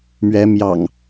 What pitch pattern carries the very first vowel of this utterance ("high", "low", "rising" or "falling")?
rising